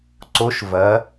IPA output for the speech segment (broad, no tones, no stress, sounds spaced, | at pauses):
ǀ o ʃ v ɐ